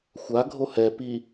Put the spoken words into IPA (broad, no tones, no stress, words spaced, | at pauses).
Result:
xʷaɡʱo hɛ pi